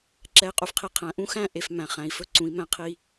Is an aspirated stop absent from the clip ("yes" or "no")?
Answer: no